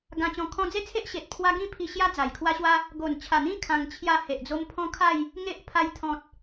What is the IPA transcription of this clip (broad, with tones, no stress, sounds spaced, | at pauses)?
ɡ ã˧ t͡ɕ ɔ̃˧ kʰ ɔ̃˧ d͡z e˦ t͡sʰ e˦ ʔ ɕ e˨ t̚ pʰ w a˦ ɡ ĩ˥˧ pʰ i˧ ɕ j a˦ d͡z a˨˩ j kʰ w a˦ ɕ w a˦ | ɡ o˨˩ n t͡ɕʰ a˨˩ n̪ ĩ˦ kʰ ã˧ ŋ t͡ɕʰ j a˥˧ h e˨ ʔ d͡z o˦ m pʰ ɔ̃˦ kʰ a˥˧ j | ŋ e˦ ʔ pʰ a˧ j t̪ʰ ɔ̃˨ t̚